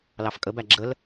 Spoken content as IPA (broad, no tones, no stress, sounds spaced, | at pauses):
l ɑ f kʼ ə b æ ɡ͡ǁ ə l